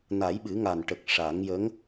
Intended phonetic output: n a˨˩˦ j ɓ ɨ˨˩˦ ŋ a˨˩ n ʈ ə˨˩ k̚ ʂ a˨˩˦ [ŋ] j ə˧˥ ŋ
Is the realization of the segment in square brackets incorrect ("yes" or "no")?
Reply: no